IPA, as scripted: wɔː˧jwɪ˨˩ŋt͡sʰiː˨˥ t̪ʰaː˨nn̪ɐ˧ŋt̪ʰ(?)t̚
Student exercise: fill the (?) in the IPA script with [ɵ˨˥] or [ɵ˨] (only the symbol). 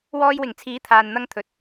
ɵ˨